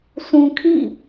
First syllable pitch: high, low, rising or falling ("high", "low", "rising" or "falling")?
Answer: low